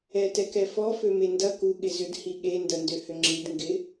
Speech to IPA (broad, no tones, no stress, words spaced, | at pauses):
ɛtɛkɛfɔ fømendɐ ku ɠɪzʏd hiɠe ndɐndøhʏŋ͡ǁid ŋɡɪ